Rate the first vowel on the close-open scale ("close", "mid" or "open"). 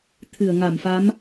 close